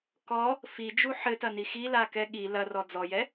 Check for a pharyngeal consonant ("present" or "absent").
present